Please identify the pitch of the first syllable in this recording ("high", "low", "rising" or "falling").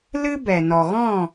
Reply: high